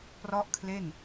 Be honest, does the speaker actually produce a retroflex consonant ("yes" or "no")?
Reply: no